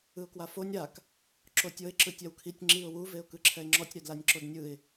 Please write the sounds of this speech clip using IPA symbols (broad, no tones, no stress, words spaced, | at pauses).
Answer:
ɯʊ̯kwafonʲ ɾak | ǁotʲɤɪ̯ ǁɯtʲawkʰitʲ ŋ͡ǁiʊ̯ wu veʊ̯kɯǁʰɛɪ̯ŋ͡ǁɔtʲ ɾɛdlanʲǁodnʲɯɪ̯